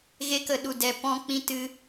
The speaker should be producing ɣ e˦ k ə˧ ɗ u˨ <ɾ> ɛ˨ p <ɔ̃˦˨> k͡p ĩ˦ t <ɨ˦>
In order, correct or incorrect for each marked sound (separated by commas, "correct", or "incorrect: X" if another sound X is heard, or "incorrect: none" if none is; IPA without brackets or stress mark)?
incorrect: d, correct, correct